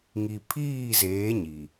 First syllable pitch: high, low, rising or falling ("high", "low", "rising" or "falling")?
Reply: low